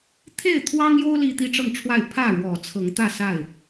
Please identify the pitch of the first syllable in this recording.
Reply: falling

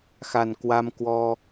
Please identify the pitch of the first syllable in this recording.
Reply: low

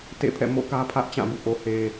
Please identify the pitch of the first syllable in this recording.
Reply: falling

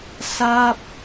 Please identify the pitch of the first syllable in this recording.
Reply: falling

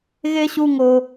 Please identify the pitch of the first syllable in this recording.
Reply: high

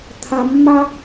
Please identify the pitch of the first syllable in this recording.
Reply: low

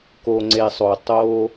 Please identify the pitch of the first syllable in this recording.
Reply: low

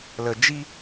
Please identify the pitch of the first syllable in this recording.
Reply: low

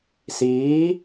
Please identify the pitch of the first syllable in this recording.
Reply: rising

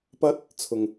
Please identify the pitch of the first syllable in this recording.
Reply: high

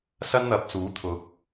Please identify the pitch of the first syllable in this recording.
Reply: high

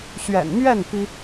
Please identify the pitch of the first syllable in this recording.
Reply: low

